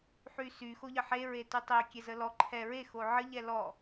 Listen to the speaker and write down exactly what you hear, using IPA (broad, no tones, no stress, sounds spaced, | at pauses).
ħ y s y x o ʎ ə ħ e ɹ e t y tˤ e kʲ ɛ z ə l ɔ ǃʰ ɛ ɹ e x o ʕ ə ʎ ɛ l ɔ